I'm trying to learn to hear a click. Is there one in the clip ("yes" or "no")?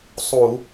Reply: no